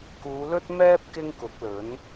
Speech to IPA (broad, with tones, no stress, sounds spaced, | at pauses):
k uː˨˧ l ɵ˥ t̚ m ɛː˥ p̚ k ɪ˥ ŋ k ʊ˨˥ k̚ l ɵ˨˥ n